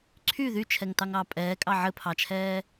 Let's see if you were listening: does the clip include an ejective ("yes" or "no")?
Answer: yes